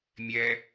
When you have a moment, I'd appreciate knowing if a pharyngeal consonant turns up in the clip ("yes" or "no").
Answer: no